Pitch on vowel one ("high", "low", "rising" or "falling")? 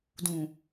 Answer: low